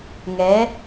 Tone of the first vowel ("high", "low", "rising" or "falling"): rising